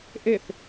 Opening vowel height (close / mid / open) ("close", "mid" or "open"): mid